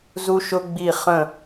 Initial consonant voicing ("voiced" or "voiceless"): voiced